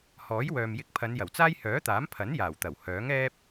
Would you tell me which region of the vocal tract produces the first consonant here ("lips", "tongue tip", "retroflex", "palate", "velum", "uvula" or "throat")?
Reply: throat